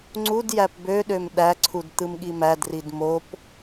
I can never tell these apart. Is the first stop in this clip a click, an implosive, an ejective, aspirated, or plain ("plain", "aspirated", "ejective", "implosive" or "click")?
click